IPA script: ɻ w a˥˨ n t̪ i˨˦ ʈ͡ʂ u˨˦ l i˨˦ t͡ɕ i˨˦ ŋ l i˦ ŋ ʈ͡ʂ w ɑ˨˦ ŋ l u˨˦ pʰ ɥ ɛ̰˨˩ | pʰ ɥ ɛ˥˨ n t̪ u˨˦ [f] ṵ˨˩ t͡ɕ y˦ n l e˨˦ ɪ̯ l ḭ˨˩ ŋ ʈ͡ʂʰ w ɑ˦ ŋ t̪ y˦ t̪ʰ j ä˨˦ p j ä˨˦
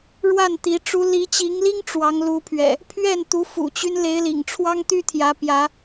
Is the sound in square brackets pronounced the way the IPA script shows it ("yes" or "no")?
yes